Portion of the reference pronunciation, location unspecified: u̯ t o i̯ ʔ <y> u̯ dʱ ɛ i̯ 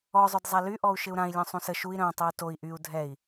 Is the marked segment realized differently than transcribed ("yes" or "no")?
no